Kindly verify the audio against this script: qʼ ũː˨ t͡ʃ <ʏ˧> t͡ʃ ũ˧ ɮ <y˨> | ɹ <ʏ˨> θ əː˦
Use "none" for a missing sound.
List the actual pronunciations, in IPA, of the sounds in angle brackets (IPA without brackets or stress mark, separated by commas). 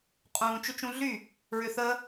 ʏ˧, y˦˨, ʏ˨